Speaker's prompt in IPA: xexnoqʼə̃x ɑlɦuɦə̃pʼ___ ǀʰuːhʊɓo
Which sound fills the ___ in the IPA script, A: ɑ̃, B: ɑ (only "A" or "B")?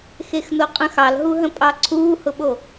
B